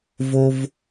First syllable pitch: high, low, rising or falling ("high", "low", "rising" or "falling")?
high